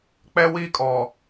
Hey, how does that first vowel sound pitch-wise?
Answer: high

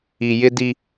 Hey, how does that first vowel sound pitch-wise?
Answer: low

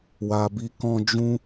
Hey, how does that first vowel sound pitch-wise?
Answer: low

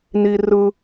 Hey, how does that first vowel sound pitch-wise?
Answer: high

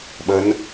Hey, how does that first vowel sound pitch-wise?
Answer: rising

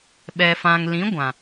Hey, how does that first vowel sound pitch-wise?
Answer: low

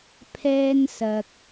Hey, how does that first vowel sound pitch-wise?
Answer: high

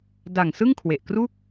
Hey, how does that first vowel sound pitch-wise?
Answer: low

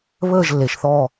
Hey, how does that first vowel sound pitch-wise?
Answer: falling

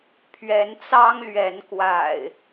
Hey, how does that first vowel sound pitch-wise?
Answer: rising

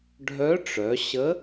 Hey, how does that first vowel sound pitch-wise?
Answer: rising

